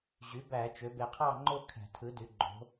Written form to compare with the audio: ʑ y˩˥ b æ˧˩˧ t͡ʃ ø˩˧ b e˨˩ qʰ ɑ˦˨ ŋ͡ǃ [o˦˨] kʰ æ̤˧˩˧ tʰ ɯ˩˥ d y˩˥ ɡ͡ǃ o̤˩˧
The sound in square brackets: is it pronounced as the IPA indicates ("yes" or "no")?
yes